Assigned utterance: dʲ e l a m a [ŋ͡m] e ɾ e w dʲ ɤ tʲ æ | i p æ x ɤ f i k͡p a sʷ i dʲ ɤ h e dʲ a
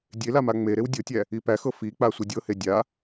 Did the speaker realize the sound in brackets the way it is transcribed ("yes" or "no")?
yes